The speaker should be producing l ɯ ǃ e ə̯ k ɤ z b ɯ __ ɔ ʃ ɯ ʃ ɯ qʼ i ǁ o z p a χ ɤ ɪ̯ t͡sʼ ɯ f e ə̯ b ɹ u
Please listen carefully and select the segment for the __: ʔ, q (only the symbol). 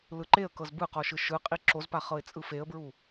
q